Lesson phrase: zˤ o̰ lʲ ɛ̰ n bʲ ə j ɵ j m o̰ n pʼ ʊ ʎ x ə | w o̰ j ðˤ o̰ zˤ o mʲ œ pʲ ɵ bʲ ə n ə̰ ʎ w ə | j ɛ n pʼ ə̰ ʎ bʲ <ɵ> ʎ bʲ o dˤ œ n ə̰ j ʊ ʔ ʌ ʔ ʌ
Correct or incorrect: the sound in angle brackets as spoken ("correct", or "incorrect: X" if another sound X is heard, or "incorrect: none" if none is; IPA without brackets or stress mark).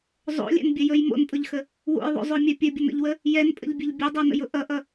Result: correct